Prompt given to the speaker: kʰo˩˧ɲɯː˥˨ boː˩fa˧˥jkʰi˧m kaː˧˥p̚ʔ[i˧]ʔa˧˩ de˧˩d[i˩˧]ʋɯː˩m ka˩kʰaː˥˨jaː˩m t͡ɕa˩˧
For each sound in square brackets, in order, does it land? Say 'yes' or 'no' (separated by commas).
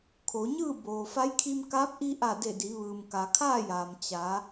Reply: yes, yes